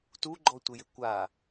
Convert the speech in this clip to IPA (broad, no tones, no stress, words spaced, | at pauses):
tuɡ͡ǃɔtʷɪjɪ kʷa